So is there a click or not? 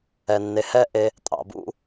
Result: no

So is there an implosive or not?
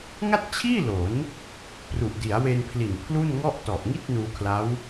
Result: no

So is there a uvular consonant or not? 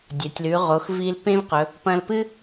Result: yes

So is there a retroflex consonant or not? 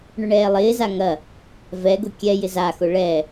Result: yes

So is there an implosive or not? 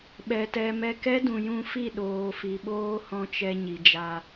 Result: yes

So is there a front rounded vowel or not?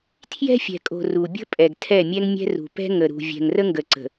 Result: no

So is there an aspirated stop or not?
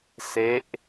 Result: no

